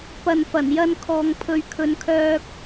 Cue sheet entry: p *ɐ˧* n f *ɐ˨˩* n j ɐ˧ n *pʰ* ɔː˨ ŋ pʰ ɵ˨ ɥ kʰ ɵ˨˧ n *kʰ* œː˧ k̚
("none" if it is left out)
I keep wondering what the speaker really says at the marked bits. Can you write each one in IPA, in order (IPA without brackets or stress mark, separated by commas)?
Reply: ɐ˨, ɐ˨˩, kʰ, kʰ